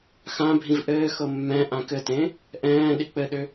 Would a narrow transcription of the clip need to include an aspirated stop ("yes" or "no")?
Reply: no